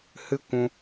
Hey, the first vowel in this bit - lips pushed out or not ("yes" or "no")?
no